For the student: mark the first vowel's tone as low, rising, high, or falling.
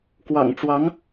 low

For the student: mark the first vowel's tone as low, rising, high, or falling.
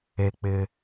high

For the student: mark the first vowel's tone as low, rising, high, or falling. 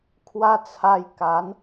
high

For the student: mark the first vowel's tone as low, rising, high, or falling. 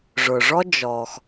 low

